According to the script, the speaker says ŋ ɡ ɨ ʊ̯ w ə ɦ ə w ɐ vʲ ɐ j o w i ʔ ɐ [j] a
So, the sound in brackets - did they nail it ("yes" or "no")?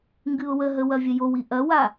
no